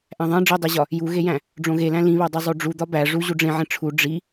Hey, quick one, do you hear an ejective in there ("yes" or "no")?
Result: no